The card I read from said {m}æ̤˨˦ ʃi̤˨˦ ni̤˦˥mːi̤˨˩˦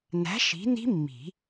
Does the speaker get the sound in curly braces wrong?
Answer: yes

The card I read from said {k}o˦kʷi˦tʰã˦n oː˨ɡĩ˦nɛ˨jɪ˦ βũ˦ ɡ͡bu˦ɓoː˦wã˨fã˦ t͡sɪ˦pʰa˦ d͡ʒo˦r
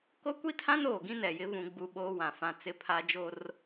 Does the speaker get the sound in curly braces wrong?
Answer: no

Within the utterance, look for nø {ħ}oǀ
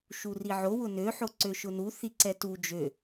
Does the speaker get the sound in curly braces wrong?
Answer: no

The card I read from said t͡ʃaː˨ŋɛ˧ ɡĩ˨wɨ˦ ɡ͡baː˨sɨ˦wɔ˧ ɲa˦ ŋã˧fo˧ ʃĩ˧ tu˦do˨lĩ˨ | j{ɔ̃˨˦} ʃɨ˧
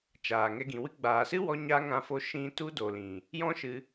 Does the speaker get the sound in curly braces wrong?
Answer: yes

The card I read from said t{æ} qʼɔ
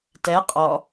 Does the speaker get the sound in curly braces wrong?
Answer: yes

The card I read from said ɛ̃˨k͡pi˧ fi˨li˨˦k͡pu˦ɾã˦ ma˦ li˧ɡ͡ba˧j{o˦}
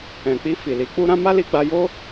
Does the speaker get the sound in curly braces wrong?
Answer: no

